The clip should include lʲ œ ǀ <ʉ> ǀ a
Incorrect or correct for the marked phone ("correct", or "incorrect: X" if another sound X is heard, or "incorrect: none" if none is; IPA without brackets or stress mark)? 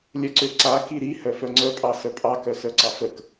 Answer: incorrect: ø